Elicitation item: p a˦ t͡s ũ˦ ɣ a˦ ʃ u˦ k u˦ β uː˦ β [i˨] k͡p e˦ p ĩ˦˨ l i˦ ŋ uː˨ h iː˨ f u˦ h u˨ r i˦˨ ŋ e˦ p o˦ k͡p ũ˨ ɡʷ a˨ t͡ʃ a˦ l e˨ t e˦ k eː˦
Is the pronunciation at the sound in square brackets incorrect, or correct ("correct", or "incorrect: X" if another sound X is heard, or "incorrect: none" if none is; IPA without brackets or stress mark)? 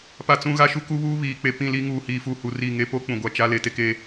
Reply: incorrect: iː˨